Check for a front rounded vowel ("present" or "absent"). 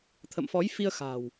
absent